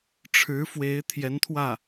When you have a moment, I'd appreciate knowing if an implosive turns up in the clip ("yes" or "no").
no